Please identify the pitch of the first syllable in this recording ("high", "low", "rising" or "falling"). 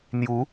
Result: rising